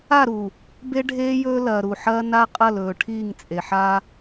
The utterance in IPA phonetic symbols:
a˦˨ ɾ u˨ | b e˦ ɖʱ eː˦ j ɵː˦ l ɐː˨ ɾ u˨ ħ ɐː˦ n a˦ qʼ ɐ˦˨ l ɵː˨ ʈʰ iː˦˨ ŋ t͡sʼ e˨ ħ aː˦

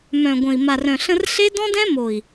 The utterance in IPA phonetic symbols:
m œ̃˨ ɡʷ ə̃˨ i̯ m a˨ r œ̃˨ ɬ ə̃˧ r ɬ e˦ d ɔ̃˦ d ɛ̃˦ m o˨ i̯

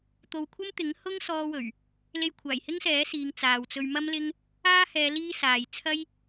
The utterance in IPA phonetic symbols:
t̪ o˨ w kʷʰ ɐ˥ m t̪ ɪ˨˥ ŋ h ʊ˥ ŋ s ɔː˧ w ɵ˨˩ ɥ | l e˧ j kʷʰ aː˨˩ j h ɪ˥ ŋ s ɛː˨˥ s iː˨˧ ŋ t͡s aː˨ w t͡s ɵ˧ ɥ m ɐ˥ m l ɪ˥ ŋ | aː˥ h ɛː˨˧ l iː˧ s aː˨ j t͡sʰ ɐ˥ j

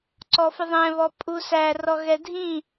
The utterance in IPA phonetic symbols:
ǀ ɔ f ɯ ðˤ ɛ̃ β ɔ pʼ u s æ r ɔ ɣ ɛ dʱ ĩ

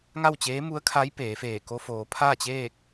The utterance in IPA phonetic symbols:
ŋ a˥˨ w t͡ɕ eː˧˥ m u˧˥ ə̯ kʰ a˧˥ j p eː˩˧ f eː˧˩ k o˧ f oː˩˧ pʰ aː˥˨ t͡ɕ eː˥˨ k̚

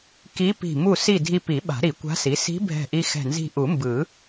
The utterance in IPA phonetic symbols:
k i˧˥ p i̤˧˩ m u˥˨ s i˥˨ dʱ i˧ p i˨˩˦ ɓ a̤˨˩˦ ɾ i˨˩˦ kʷ a̤˧˥ s i˩˥ s i̤˧˥ bʱ ɛ̤˧˩ ʔ i˧ x ɛ̤˧˩ n z i̤˧˩ ʔ u˨˩˦ m b ɯ˨˩˦

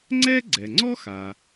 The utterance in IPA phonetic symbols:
ŋ͡ǀ ɛ˥ ɡ͡ǀ ɛ˩ ŋ͡ǀ ɔ˥ x a˩

